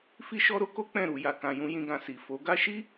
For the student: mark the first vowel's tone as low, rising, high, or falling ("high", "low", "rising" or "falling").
high